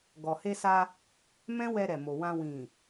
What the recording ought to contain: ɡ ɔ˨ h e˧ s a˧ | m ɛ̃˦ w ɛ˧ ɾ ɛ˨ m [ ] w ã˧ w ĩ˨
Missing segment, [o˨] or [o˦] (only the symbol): o˨